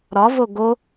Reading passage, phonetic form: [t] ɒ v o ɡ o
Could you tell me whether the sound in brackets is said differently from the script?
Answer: yes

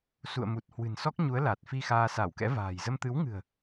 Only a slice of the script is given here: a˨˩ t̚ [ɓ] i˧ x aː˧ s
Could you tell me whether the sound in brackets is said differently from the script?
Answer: yes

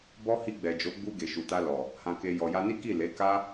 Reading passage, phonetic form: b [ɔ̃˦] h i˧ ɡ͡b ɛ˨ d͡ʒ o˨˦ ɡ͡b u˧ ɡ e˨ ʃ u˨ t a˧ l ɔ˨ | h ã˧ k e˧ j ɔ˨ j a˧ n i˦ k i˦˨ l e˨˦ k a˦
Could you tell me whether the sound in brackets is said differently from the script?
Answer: yes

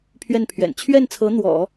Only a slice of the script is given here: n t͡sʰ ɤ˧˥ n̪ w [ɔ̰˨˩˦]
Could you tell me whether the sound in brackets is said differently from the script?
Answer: no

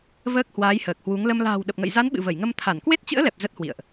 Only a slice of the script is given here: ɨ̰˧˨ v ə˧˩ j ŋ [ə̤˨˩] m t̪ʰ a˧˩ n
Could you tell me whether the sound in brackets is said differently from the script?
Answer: yes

